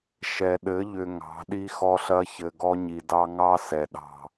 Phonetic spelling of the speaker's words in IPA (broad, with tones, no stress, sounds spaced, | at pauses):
ʃ ɛ˨ ɗ ɘ˨˦ ʎ ʏ˨ ŋ ɑ̤˨˦ ɗ i˦ x ɔ˦ ɬ ɐ˦ ç ɘ˨ ɡ ɔ˦ ɲ i˨ d ɑ˦ ŋ ɑ˦ s ɛ˨ ɗ ɑ̤˦˨